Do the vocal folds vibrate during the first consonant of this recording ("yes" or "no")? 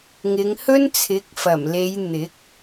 yes